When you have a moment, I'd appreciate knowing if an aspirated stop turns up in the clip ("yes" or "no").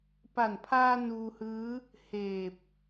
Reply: yes